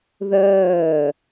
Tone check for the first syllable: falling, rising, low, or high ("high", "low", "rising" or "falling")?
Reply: falling